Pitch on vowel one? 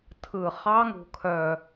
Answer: low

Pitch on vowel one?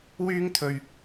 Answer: high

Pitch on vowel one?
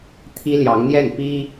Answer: high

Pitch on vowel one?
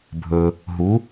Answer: low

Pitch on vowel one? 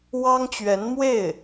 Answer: high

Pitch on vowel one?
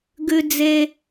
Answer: high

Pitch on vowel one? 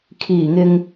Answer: low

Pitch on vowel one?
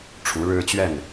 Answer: rising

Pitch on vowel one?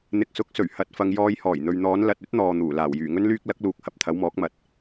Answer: low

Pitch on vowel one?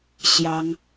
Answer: high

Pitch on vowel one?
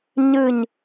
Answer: falling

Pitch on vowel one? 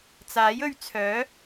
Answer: rising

